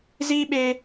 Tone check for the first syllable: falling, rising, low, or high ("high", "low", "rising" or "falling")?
high